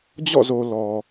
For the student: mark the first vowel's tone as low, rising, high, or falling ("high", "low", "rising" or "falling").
falling